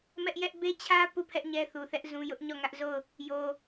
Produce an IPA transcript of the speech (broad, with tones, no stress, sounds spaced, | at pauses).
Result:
m ɛ˦ ʔ j ɛ˦ ʔ b e˦ t͡ɕʰ ä˦ p u˦˨ pʰ ɛ˦ ʔ ɲ ɛ˦ θ u˨ θ ɛ˦ ʔ z ũ˦ j ʊ˦ ʔ ɲ ɔ˦˨ ŋ ä˦ ʔ z o˦˨ ʊ̯ | j o˨